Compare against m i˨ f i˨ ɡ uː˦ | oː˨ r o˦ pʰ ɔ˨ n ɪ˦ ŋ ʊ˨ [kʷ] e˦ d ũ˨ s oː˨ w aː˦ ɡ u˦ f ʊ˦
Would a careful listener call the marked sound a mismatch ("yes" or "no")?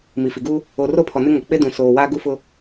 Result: yes